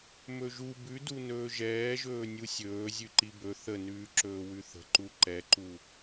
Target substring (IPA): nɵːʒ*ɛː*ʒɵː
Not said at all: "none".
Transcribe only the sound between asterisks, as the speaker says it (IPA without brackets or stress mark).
ɛː